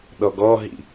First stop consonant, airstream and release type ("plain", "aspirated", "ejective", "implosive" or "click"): implosive